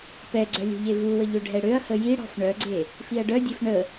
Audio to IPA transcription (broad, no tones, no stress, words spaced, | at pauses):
pɛɡ͡ǀœ lʲo̤ʎevuwə ʎøɖʱɛɽøɐ̯hə jiɽɔ̤f ɳœɡ͡ǀe | fiɐ̯ɖœdʲef ɳə